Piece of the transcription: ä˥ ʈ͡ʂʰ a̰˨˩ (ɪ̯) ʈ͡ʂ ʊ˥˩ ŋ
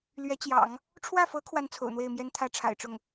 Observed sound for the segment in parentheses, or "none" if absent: ɪ̯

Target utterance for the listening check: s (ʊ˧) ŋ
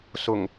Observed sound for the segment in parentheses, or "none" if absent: ʊ˨˩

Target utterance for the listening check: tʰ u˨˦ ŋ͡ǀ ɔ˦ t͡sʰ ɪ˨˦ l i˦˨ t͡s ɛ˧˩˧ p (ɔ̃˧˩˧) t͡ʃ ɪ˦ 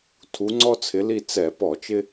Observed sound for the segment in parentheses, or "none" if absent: ɔ˧˩˧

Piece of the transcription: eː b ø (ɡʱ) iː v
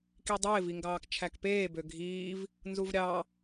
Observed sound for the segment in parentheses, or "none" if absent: ɡʱ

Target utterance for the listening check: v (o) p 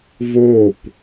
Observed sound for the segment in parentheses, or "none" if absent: o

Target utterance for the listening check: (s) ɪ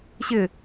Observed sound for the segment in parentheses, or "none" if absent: ɕ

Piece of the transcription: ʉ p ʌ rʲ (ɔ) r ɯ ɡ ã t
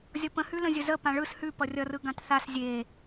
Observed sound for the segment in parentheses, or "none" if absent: ʌ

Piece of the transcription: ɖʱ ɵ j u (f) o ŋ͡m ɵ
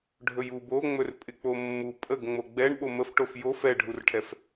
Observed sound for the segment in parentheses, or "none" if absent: b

